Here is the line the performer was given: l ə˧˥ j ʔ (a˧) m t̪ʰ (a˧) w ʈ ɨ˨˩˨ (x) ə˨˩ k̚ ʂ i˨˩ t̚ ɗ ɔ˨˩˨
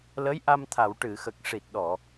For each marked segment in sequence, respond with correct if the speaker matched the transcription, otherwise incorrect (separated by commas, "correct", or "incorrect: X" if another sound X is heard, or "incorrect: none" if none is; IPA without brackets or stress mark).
correct, incorrect: a˨˩˨, correct